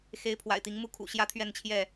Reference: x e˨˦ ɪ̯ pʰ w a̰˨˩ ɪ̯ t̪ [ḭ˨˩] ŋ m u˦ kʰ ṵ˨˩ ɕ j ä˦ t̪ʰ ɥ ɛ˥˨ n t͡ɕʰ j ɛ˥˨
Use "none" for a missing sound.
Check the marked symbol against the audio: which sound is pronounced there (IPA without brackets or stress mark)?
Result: i˨˦